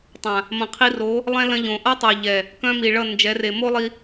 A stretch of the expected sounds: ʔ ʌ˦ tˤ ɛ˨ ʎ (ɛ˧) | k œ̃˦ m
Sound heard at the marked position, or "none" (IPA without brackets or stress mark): ɛ˨